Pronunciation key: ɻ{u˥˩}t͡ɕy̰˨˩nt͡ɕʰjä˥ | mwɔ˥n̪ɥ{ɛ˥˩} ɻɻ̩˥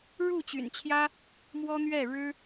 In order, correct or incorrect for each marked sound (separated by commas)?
correct, correct